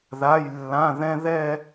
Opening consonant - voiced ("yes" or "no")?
yes